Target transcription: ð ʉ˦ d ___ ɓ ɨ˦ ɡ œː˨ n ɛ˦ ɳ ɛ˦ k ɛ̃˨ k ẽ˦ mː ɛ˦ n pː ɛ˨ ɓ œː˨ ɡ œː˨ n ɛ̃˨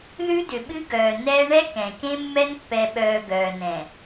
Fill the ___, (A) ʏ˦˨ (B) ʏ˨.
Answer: B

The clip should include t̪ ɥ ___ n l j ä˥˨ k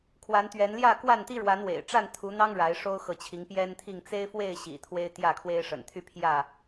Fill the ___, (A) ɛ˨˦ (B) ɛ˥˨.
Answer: A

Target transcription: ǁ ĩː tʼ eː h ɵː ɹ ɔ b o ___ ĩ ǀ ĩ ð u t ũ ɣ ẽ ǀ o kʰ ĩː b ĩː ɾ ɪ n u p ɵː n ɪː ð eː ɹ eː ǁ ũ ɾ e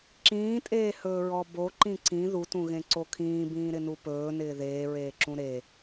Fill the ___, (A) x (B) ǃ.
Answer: B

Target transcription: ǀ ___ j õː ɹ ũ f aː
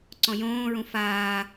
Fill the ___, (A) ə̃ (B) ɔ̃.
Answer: B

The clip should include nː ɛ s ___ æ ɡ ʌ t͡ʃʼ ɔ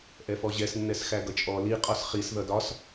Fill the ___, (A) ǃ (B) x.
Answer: B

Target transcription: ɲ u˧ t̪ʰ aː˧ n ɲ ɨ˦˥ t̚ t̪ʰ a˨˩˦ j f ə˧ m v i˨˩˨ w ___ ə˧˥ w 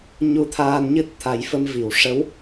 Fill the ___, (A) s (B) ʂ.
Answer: B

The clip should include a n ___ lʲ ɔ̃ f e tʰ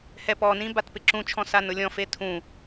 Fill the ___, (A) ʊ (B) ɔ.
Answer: A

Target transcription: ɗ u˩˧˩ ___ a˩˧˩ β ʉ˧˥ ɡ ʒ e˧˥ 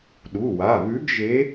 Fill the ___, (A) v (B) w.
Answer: B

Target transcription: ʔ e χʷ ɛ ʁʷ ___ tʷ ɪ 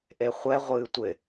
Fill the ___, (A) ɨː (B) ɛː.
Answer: A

